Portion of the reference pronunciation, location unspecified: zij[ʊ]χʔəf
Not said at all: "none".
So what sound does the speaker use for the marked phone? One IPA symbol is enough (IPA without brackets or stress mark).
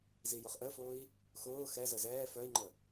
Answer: ʊ